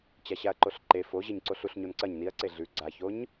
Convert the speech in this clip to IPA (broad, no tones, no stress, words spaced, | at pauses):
t͡ɕaɕaɐ̯ǃoɬǃe fo ʑeɲǀoɬuɬ ɲonǀɐɲ niɐ̯ǀe ɮʉ ɡ͡ǀaçoɲ